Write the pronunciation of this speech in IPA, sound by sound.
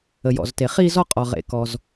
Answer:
ə˩ j ɔ̰˩ z t e˩ χ i˥˧ z ɔ˥˧ qʼ ɔ˩ ʁ ḛ˩ k ɔ˩ z

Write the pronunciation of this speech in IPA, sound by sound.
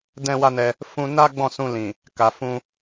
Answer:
d ɛ̃˧ w a˧ n ɛ˧ | f ũ˧ n a˦ ɡ͡b ɔ̃˦˨ s ũ˧ l ĩ˨ | k a˨ f ũ˧

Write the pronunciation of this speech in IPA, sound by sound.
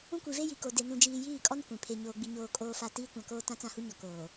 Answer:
ũ˦ kʷ i˨ v e˦ j i˨ k o˨ d e˨ n ũ˨ d͡ʒ iː˨ j iː˦˨ kʼ ɔ˦ n kʷ ĩ˨ pʰ e˨ ɲ oː˨ ɡ͡b i˨ ɲ oː˨ kʼ oː˨ f a˨ t iː˦ kʷ ã˨ k oː˦ t ã˦ t͡s ã˦˨ h u˦ ɲ ɔ˨ k oː˨

